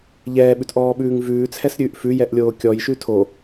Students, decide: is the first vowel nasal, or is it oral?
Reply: oral